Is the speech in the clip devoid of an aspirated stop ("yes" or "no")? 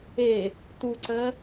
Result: yes